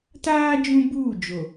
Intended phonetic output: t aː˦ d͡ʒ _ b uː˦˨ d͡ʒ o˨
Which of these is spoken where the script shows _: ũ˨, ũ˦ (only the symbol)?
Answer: ũ˦